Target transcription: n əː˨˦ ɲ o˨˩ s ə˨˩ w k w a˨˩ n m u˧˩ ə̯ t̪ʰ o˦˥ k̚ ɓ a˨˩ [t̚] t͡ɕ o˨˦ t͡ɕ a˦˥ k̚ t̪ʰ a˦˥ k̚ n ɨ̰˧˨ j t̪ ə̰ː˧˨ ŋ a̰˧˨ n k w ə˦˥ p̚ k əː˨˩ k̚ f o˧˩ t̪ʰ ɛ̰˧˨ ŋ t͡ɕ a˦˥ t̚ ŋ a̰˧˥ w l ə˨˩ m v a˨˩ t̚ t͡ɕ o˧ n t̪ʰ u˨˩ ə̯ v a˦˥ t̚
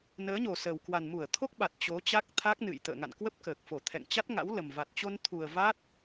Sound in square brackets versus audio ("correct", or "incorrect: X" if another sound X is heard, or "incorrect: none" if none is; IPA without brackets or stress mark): correct